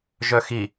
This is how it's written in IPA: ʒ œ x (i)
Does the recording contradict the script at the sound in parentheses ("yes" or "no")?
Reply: no